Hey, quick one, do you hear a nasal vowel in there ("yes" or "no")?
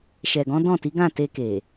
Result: yes